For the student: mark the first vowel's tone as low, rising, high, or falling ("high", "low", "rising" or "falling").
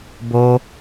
high